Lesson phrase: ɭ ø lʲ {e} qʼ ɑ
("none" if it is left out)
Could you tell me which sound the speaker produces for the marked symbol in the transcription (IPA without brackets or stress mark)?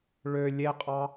e